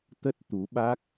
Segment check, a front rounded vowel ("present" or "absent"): absent